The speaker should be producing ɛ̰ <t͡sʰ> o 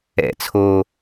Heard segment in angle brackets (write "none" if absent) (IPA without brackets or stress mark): t͡sʰ